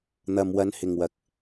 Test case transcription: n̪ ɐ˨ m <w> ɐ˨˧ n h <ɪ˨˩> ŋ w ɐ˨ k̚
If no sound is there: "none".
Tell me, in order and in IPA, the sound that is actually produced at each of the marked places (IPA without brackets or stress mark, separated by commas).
w, ɪ˨˩